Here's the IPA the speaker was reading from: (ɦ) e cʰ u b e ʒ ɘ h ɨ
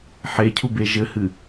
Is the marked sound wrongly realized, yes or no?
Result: yes